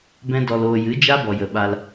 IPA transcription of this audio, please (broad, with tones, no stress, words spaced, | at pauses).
bɛ̃˦dɔ˧loː˧ jɨ˨˦d͡ʒa˦bɔ˨ jə˨ɓa˧l